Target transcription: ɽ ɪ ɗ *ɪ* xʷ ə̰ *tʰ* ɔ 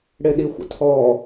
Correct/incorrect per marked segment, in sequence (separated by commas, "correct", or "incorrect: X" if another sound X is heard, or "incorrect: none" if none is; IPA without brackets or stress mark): incorrect: i, correct